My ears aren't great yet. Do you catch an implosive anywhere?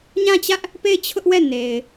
no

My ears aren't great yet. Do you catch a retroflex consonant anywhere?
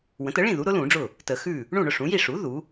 yes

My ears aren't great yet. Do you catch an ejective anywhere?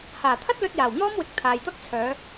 no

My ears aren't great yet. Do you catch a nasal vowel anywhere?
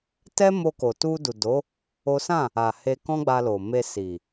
yes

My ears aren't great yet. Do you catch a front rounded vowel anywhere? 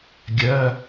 yes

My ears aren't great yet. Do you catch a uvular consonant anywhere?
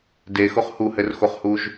yes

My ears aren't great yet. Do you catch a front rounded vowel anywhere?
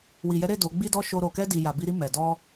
no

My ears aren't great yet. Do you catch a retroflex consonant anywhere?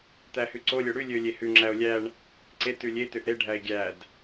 yes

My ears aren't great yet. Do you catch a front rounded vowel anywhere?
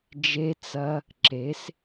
no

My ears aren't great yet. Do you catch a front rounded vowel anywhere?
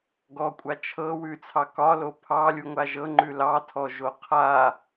no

